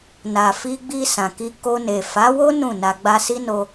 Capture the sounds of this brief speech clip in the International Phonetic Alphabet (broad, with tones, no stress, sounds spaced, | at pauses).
n a˨ f i˧ ɡ͡b i˧ s ã˨ k i˧ k o˧ n e˨ f a˨˦ w o˦ n ũ˦˨ n a˧ ɡ͡b a˧ s i˦ n o˧